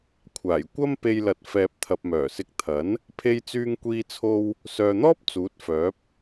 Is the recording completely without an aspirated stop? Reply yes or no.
no